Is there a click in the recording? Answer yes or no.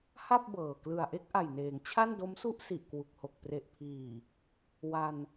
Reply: no